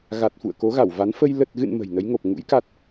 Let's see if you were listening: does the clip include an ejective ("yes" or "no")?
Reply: no